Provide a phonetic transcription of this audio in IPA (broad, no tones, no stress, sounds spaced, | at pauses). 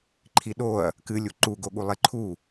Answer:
ǃʰ i ɗ o ɐ̯ | k ɨ lʲ u ǃ u ɡ o ɠ u lˠ e ǃʰ u